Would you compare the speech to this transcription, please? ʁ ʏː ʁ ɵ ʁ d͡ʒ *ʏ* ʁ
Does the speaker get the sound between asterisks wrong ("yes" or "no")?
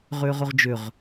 no